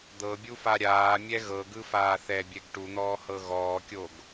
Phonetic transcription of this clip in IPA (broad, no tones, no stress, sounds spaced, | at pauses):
d̪ ɤ bʲ u f a ɾʲ aː mʲ ɛ ɣ ɤ ɡ ɯ f aː θ ɛ bʲ ɛ ɡ ʈ u n̪ ɔː h ɤ ɣ ɔː kʲ o ɡ